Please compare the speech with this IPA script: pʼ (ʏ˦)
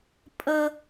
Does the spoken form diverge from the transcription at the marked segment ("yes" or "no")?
yes